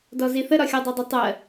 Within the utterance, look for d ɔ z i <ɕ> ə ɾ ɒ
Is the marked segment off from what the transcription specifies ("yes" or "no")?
yes